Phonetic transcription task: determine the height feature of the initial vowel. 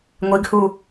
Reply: high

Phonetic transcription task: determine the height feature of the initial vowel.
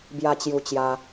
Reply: low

